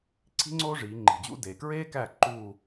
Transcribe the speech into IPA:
ǀʰ i̤˥ ŋ͡ǀ oː˥ ʐ iː˩˧ ŋ͡ǃ i̤˨˩ d͡ʑ ṵ˥ d e˨˩ k ɹ eː˥ k æ˥˩ ǃ uː˥˧

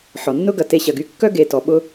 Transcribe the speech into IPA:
ħ ɔ˨ nː ʊ˦ ɡ ɐ˨ t e˧ ɕ ɐ˨ ɡ y˧ kː œ˦ ɡ e˨ t ɔ˨ ɓ ʊ˦

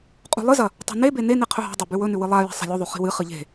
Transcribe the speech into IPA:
qʼ ṳ lˠ ɨ z ɐ | tˤ a̤ n e b e n e n i qʰ ɵ ɦ a̤ dˤ a b ʉ w ɵ n ʉ w ɨ lˠ a j e̤ sˤ a̤ lʲ u ðˤ ʉ χ i̤ w ɨ χ ɨ ʎ e̤

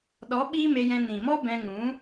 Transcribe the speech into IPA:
ɗ ɔ˨˦ ɓ iː˦ m e˧ j ɛ̃˧ n ĩ˨ m ɔ˦ b ɛ̃˧ ŋ ũ˨˦

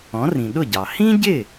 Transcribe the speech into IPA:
ɔ̃˩˥ r ĩ˩ ɗ ʊ˥˩ ɟ ɑ˩ h ĩ˥ ɟ ɪ˥˩

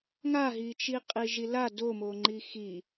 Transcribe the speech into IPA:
ŋ a ɦ i t͡ʃ i qʼ i ʒ i l a d o m o ŋ͡ǃ i x i

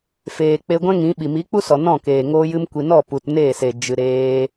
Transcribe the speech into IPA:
f eː˨ k͡p e˧ ɡʷ ɛ̃˦ ŋ ĩ˨˦ ɓ i˨ m i˨˦ k͡p u˦ s ɔ˨ n ɔ̃˦˨ k eː˨ ŋ oː˧ j ɨ˧ m kʷ i˨ n ɔ˦˨ p u˨ t n eː˦˨ s e˨ d͡ʒ ɨ˨ ɾ eː˧

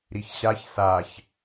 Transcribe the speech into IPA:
ɾ i ç ɕ a ç s a ç

